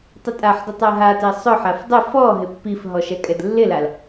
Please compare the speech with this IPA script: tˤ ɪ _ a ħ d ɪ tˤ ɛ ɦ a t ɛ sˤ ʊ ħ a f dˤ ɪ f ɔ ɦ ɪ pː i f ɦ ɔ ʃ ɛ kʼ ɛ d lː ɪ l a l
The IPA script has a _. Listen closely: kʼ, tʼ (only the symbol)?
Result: tʼ